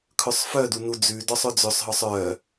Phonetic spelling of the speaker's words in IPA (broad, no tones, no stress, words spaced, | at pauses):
kʰɵsˤfœdu nud͡zʉdɔsˤ ɵd͡zøsˤɦɔsˤ œ